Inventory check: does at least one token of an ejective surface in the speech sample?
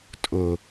yes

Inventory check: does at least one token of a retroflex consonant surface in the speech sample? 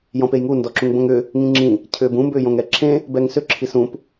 no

